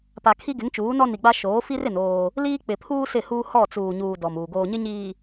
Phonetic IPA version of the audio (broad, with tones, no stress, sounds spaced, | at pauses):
p a˨ kʰ i˦ ɡ ɪ˨˦ ŋ t͡ʃ uː˨˦ n ɔ˦ n i˨ ɡ͡b a˦ ʃ oː˨˦ f i˦ r ɪ˨ n oː˦ | l iː˦ k͡p ɪ˨ pʰ uː˦ s ɪ˦˨ h uː˦ h ɔ˦˨ t͡s uː˨ ɲ uː˨ d ɔ˨ m uː˨ ɡ oː˨ ɲ ɪ˦ ɲ iː˨